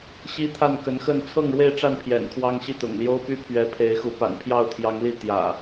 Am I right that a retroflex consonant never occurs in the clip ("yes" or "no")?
no